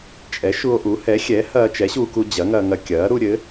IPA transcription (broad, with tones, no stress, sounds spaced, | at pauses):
t͡ʃʼ ɛ˩˥ ʃ u˧ o̯ ʔ u˩˥ h ɛ˩˥ xʲ ɛ˩˥ h ɐː˧ t͡ʃ ɛ˩˥ ɕ uː˧ k u˧ d͡ʑ ɐ˩˥ ŋ ɐ˧ ŋ ɐ˧ kʲ ɐː˩˥ ɾ u˧ ɾʲ ɘ˩˥